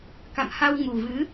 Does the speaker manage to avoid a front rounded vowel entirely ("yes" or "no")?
yes